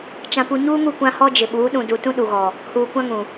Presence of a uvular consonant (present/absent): absent